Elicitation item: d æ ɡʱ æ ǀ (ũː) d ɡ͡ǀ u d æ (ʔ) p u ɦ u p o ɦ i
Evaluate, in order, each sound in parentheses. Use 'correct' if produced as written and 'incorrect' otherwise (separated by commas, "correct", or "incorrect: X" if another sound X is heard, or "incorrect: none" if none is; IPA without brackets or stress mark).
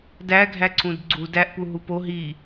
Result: incorrect: ũ, correct